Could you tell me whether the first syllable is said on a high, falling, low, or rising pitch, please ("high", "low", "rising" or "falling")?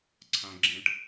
low